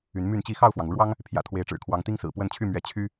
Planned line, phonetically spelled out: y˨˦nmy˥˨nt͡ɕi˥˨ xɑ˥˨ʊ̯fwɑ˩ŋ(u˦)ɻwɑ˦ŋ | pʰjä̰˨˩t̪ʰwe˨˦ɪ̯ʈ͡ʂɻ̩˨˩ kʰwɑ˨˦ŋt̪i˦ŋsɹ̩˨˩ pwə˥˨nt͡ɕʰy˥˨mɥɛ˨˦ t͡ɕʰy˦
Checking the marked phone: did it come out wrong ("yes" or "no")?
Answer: yes